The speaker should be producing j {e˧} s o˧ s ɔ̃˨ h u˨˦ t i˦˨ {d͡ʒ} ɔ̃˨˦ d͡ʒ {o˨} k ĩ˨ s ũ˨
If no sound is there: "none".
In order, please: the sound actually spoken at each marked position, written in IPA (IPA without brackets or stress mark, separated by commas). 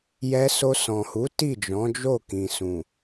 ɛ˧, d͡ʒ, o˦˨